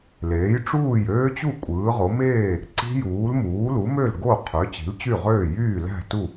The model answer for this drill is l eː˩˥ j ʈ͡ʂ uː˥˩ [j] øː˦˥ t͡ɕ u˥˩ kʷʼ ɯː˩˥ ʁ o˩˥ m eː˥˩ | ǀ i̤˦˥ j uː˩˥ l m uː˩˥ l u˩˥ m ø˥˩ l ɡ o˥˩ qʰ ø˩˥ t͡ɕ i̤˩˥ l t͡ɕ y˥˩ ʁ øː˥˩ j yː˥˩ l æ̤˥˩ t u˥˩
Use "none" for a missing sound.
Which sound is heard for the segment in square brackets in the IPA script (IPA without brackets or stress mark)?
j